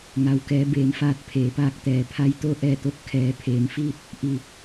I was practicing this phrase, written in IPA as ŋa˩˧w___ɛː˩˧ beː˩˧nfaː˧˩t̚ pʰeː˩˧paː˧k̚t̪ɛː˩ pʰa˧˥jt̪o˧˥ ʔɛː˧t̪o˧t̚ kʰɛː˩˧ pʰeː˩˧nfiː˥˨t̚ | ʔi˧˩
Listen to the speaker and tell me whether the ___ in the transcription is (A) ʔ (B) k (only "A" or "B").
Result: B